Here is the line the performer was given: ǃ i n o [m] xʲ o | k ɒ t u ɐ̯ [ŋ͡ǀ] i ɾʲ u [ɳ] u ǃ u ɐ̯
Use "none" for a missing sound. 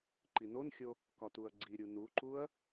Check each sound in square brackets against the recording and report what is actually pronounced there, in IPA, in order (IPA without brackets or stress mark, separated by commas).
n, ɡ͡ǀ, n